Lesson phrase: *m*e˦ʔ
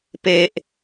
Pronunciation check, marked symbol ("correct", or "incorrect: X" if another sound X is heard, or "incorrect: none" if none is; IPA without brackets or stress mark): incorrect: p